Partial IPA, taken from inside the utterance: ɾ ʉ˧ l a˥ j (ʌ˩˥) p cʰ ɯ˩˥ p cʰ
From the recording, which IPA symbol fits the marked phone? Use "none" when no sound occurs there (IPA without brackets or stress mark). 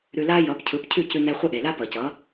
ʌ˩˥